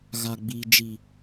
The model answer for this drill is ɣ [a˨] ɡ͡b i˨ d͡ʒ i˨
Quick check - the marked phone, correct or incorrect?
correct